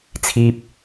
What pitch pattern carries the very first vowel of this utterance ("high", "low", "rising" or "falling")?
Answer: low